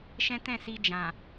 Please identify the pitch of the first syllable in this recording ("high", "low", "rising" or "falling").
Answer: high